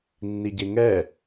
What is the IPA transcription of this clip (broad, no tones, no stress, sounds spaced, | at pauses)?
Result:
nː i ɟ e ŋ ɛ